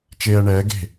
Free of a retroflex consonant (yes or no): no